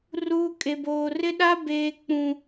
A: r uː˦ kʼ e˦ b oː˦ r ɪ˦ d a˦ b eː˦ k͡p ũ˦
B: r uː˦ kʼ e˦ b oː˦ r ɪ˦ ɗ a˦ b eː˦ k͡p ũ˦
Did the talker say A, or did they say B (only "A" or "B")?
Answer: B